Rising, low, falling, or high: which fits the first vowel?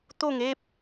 falling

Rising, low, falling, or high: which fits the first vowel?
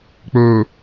low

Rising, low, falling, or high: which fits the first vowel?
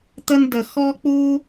high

